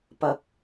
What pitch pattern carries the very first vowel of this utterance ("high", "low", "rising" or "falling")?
low